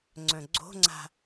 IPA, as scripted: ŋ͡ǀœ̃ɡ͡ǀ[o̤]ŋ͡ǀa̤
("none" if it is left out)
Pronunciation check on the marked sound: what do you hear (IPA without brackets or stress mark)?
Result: o̤